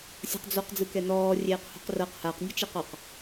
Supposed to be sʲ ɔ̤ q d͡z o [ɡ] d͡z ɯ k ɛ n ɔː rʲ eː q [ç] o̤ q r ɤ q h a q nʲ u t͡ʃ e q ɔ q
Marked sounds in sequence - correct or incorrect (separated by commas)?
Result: incorrect, incorrect